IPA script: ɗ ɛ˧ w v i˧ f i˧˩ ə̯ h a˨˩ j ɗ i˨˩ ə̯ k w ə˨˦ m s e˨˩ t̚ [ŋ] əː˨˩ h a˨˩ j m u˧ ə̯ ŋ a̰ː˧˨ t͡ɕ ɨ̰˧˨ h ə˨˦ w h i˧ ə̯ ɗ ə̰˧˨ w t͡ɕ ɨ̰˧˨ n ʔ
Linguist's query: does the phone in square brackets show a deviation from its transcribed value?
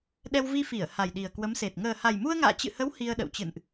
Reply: no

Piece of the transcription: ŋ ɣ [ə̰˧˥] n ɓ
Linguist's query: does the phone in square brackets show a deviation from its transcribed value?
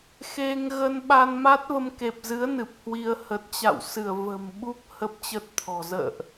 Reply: yes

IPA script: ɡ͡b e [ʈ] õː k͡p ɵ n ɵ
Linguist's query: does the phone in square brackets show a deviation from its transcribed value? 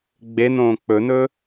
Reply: yes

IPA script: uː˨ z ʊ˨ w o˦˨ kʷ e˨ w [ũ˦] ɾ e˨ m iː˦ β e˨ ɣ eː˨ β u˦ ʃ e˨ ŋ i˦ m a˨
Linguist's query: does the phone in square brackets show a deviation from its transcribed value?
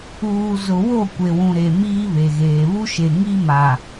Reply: yes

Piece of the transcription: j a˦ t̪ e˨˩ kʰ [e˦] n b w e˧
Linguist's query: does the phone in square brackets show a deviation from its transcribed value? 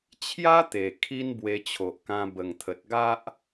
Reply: yes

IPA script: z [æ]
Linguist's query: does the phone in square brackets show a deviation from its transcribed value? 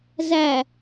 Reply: no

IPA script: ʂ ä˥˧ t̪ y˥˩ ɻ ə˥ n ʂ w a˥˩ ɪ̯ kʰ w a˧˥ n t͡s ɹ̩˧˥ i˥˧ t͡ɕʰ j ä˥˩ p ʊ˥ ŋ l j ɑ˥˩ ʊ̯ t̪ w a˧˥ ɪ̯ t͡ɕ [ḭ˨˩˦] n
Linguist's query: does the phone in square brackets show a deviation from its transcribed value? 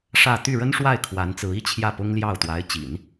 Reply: no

